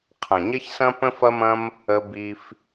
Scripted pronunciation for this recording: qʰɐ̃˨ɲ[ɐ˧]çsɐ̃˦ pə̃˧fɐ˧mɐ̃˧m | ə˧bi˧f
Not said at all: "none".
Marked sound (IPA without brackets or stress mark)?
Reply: ɐ˦